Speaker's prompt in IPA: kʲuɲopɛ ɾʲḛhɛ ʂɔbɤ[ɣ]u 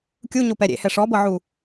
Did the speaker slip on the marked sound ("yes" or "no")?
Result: yes